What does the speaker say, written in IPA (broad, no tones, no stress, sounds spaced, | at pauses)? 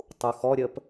tˤ u x ɔ ɾʲ əː p